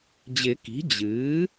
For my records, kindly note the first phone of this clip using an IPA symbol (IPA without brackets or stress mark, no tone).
d͡ʑ